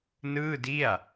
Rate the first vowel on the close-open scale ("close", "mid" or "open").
close